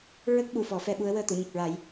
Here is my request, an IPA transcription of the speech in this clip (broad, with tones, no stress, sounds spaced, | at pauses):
ɹ ə˦˥ k̚ ɓ u˨˩˨ f ɔ˨˩˦ f ɛ˧ ɓ u˧˥ ə̯ w əː˧ t̪ u˨˩˨ ɲ ə˨˩ k̚ ɹ a˨˩˦ j